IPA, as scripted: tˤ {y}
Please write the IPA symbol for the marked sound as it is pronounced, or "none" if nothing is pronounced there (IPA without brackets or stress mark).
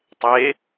e